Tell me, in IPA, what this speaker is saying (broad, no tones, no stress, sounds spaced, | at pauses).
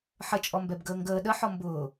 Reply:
ħ ə t͡ʃʼ ɔ m b ɛ b ɡ əː ŋ ɡ əː ɗ ə ħ ɔ m b ʊː